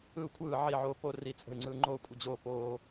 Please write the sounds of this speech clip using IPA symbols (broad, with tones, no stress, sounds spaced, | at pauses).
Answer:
ɯ˥˨ u̯ kʷʰ ɯː˥˨ ʕ i˥˨ ʕ oː˦ p o˦ r i˦ t͡sʼ ə̤˥˨ y̯ ŋ͡ǀ ɯ˦ ŋ͡ǃ oː˥˨ kʷʼ ə˥˨ d͡ʑ oː˦ p oː˦